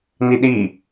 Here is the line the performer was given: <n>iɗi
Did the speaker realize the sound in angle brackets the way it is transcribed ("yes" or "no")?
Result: yes